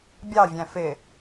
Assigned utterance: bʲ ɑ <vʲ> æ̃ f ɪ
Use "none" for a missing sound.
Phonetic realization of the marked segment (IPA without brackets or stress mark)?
vʲ